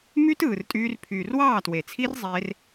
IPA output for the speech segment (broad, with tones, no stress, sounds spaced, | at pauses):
m y˦ t ɯː˨ r tʼ yː˧ r pʰ yː˨ r w ɑː˦˨ t w e˨ t͡sʰ i˦ r zˤ eː˦ r